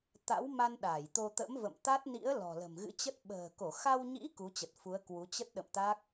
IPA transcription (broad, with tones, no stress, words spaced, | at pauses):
t̪a̰˧˥wma˧n ɗa˧˩jt̪o˧ t̪ə̰˧˥mvə̰˧˨m t̪a˦˥t̚nḭ˧˥ə̯ lɔ̤˨˩lə̤˨˩mɣɨ̰˧˥t͡ɕə˦˥t̚ ɓə̤ː˨˩ko˧˩xa˧wɲḭ˧˥ ku˨˦t͡ɕə˨˩t̚ fu˨˦ə̯kwu˨˦ t͡ɕə˦˥t̚ɗə̰˧˨mt̪a˦˥k̚